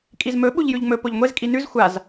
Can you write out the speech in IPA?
kʼizmɵ ɓuʎjʉʎŋ͡mɵ poʎŋʷez kʼinʉz xʷaz

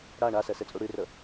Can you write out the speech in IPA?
ɽa ɳasɛset͡sʼu ɽyrə

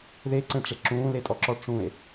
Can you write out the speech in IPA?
ðeǀẽʈ͡ʂe ǁũːletʼɔǁɔ ʈ͡ʂũe̯

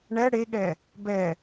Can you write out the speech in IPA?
ɳɛ ɽeɠɛ | bɛ

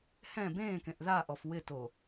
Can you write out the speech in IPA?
hɛ̃ bẽːkẽʔ ðaʔɔf wɪto

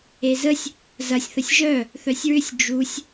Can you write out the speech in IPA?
ezəsʲ | zɐsʲ θəsʲʒœ | θœsʲɹʏsʲ d͡ʒusʲ

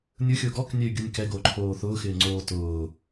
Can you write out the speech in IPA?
nʲʊxʲʊː ɡɔknʲɛy̯ɡʲʊnʲ kɛɡoǃʰoː θʊːxɪːŋ͡ǀoː tʊː

